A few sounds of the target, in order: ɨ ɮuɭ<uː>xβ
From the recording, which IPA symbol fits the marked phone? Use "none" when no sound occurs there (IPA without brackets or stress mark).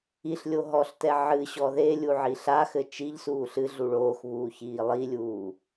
oː